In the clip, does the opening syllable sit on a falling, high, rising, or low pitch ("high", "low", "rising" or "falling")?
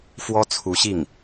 high